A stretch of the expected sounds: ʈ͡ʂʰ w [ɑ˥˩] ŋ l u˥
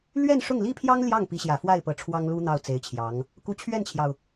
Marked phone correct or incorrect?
incorrect